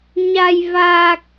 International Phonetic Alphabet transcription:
ɲa˨˩j vaː˨˩k̚

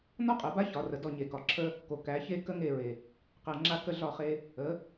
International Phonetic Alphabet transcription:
nɒ˦qʼɛ˨ba˦çɒ˨ rə˨dɔ˦˨ ɲe˨kɒ˨ ǁʰə˦ | ko˨kæ˨˦çe˦ kə˦ŋe˦˨ɹe˨ | qɛ˨ ŋ͡ǁa˦kə˦ɮɒ˦˨χe˦ | ə˨˦

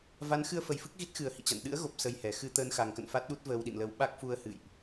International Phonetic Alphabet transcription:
va˨˦nxɨ˧ə̯fə˨˩jfɨ˦˥k̚ ɣi˦˥t̚xɨ˧˩ə̯ hḭ˧˨t͡ɕa̰˧˨n ɗɨ̰˧˥ə̯ɣo˨˩p̚ sə˧jhɛ˨˩ xɨ˧ t̪əː˧nxa˨˩ŋkə̰˧˨n fa˦˥t̚ɗu˦˥t̚ vəː˧wɗḭ˧˨nlə˧w ɓa˦˥k̚fu˧ə̯ hɨ̰˧˨jʔ

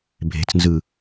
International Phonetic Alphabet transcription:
bʱe̤t͡snzɯ

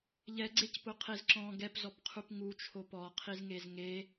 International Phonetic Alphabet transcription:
ʎɛɡ͡ǀec pʊqʰezǁɔ̃ ɡɛpzɔpqʰup ŋu t͡ʃʰopɔqʰizŋez ŋe

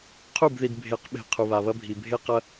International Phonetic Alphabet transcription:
qʰu˦˨bði˨dbʱe˨˦qɓe̤˨ qʰu˨βa˨βɐ˦bʱi˨ bʱe˦qɐ˦

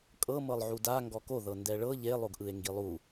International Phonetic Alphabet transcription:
kʼɤ mɤlˠʕuda ŋɡɔko ðɤndɛɭɤ ʎe lˠoɡʔɯe̯ŋɡilˠu

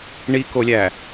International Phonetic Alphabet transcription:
ɳikolʲæ

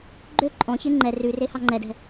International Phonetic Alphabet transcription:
ɡ͡ǃø ǃʼɔ̃çe ŋ͡ǃɛ rʉre hɑŋ͡ǃɛdɛ̤

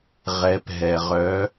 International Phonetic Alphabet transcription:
ʁɛ˧˥pɦɛ˧ ʁœ˧˥

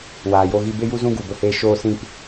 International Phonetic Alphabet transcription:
waː˨jo˧ɣi˧ be˧ju˧zũ˧ ɡu˨bə˧heː˧ ʃoː˧sĩ˧p

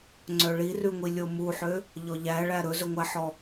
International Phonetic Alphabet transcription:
ŋ͡ǀœɭirʉŋʷi lʲomuħø | ʎɔʎæɭæ ɾɵzɵŋʷæħɔ

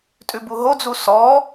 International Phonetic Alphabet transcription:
tʼʉbuɦod͡zu sɔ

